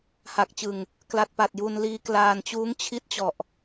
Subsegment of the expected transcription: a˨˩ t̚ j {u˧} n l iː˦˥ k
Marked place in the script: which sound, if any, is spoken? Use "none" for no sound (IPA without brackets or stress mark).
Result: u˧